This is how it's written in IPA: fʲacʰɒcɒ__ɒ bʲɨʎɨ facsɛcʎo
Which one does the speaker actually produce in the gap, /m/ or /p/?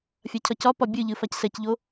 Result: p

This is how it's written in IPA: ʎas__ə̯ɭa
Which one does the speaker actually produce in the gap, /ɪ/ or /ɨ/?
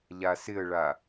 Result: ɪ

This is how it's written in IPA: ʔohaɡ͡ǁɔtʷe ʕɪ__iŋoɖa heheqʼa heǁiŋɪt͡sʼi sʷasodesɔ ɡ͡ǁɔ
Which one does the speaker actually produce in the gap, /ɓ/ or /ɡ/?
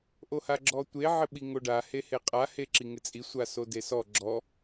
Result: ɓ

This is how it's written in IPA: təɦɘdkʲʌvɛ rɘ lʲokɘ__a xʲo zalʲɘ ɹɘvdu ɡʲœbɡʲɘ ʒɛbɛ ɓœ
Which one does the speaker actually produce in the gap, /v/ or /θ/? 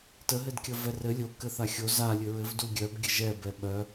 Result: θ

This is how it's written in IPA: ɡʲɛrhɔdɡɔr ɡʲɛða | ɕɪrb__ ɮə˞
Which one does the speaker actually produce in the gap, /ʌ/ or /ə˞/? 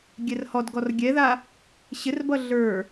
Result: ʌ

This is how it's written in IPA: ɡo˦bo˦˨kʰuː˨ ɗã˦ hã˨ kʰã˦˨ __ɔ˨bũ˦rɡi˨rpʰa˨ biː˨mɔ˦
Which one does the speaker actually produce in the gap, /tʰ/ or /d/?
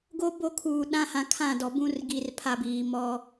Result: d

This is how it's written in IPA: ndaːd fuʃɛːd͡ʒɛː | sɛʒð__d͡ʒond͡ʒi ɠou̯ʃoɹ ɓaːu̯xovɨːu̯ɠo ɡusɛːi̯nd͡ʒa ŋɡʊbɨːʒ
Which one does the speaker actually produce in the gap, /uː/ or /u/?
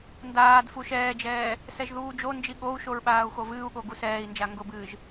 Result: uː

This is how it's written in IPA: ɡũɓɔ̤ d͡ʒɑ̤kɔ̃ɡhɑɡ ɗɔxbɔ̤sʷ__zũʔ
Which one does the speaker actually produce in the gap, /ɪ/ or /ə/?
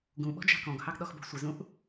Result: ɪ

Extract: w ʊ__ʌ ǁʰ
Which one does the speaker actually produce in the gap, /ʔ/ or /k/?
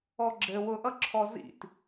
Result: ʔ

